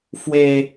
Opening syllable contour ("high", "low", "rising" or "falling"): high